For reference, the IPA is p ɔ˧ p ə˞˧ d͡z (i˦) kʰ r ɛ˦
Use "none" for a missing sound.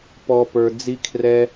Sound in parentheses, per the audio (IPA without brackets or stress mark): i˦